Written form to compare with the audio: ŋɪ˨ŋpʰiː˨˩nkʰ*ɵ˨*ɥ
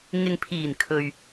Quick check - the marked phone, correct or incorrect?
correct